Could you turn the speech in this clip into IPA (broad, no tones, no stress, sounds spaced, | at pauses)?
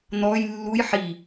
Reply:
n̪ ɔ j lː u j ħ i